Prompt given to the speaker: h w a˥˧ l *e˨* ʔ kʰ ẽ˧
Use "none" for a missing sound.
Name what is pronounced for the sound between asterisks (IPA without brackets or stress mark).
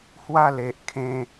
e˨